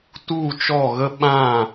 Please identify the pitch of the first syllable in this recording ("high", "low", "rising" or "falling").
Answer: falling